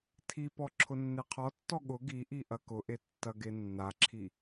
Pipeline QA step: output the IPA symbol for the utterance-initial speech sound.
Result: tʰ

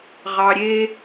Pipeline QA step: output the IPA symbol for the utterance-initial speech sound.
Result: ʁ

